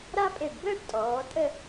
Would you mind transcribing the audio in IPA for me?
ɾ a˥ pʼ e˧˩ ɖ b əː˥ ɖ tʼ ɔː˩˧ tʼ ə˥˧

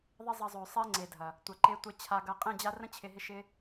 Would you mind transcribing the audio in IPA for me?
ðˤ ɪ˦ zˤ ɐ˧ zˤ ø˨ sˤ e˦ ŋ͡ǀ e˨ dʱ ɐ˨ | tʷ a˨ ǃ e˧ tʷ e˧ t͡ɕʰ a˧ ɡ ɐ˧ qʼ ẽ˦˨ d͡ʑ a˦ r ə̃˦ t͡ɕʰ ɪ˧ ɦ ɪ˦ ʃ ɪ˦

